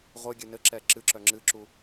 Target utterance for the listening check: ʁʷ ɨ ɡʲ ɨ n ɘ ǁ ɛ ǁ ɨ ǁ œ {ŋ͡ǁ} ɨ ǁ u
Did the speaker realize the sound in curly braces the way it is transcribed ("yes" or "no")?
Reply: yes